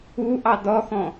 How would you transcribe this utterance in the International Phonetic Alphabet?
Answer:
uʔɑ dɔxɔ̃

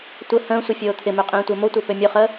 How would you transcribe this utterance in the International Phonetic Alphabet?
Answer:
tʷə hə̃ːsʷə fʲoːt̪ʰɪmø qʼĩːtʷə˞motʷə˞ pømʲoχəː

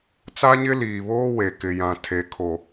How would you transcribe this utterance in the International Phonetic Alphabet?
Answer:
t͡sa˦ɲɪ˦liː˨βoː˦ we˨kɪ˨jã˨ tʰe˨kʰo˨

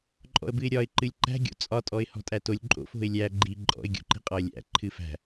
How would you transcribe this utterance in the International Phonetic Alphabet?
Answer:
ǃʼɔ̰ə̯bɨɪ̯ɾʲɒɪ̯ ǃɨlʲǃæ̤ ɡʲo̰t͡sʼɒ tʼɔɪ̯hɔ̤tʼætolʲ ǃʼo̰f o̤ɪ̯lʲæ ɡ͡ǃi ǃʼɔ̰ɪ̯ ɡʲo̰ǃi̤qʼɒə̯lʲæ̰ ǃʰɨfæ̤

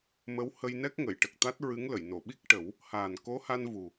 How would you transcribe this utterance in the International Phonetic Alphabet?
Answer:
mə˧˥w hə˧jnɛ˦˥k̚ ŋə˨˩˨jʈə˨˩k̚t̪a˦˥t̚ ɹɨ˧˥ŋ lə˨˩˨jno˨˩˨ɓi˦˥k̚ʈə˨˩˦w | haː˨˩nko˧˥ha˧n vu˨˩

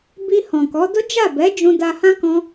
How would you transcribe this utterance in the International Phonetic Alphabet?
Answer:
bi˧ hɔ̃˨kɔ˨˦ do˦d͡ʒa˦˨bɛ˨˦ d͡ʒũ˦ da˧hã˦ kɔ̃˦

